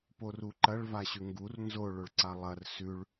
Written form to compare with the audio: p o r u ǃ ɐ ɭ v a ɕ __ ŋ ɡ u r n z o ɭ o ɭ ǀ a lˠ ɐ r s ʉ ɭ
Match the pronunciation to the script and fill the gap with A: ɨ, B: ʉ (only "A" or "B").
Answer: B